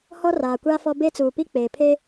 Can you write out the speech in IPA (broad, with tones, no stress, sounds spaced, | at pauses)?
h ɔ˦ r aː˨ kʷ aː˦ f ɔ˦ b e˦ t͡s uː˨ p i˦ k͡p eː˨ pʰ e˦